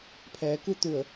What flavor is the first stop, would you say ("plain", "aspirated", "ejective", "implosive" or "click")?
aspirated